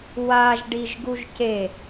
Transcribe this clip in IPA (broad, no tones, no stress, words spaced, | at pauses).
waʒɖiʒ ɡuʒce